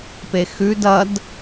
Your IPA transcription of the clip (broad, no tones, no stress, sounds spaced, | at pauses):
p e x ʉ d ɐ d